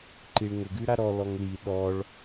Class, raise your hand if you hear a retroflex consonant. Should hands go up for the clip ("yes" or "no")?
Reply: yes